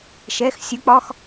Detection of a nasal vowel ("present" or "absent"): absent